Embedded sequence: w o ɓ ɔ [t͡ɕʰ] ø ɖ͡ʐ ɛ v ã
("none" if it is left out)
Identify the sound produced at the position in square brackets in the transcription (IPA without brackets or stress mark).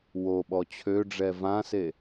t͡ɕʰ